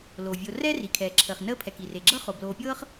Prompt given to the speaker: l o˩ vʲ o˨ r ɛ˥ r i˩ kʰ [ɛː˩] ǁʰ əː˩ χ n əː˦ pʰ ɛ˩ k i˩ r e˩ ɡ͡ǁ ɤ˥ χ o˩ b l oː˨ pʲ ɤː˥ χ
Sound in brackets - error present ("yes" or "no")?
no